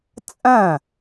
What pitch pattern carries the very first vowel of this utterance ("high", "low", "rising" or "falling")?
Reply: falling